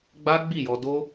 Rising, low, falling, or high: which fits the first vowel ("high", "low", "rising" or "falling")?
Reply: high